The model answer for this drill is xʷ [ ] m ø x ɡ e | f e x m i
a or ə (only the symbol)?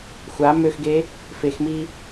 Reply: a